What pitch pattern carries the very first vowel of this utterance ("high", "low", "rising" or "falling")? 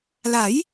rising